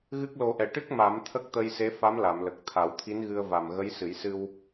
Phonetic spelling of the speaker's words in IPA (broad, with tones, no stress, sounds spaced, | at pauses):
ɣ ɨ˦˥ k̚ l o˨˩˦ ʔ ɛ˨˩˨ ʈ ɨ˦˥ k̚ m a˨˩˦ m t̪ʰ ə˦˥ k̚ t̪ ə˧ j s e˧˥ f a˧˥ m l a˨˩˨ m l ə˨˩ k̚ t̪ʰ a˨˩˦ w t̪ʰ i˧˥ n ɣ ɨ˧ ə̯ v a˨˩ m ɣ ə˧˥ j s ɨ˨˩˦ j s ɨ˧ w